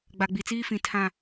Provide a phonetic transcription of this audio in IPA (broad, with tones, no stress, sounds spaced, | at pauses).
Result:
ɡ͡b a˨ ɡ͡b i˨ t͡s iː˦ f ĩ˨ tʰ ã˦˨